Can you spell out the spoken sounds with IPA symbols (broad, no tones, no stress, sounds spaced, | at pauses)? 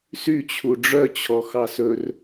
s y t͡ɕʰ u ɖ͡ʐ œ t͡ɕʰ ɔ x ɑ s ɵ r